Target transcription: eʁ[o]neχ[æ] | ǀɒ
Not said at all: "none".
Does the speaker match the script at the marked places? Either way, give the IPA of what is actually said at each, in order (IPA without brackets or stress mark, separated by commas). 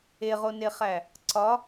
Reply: o, æ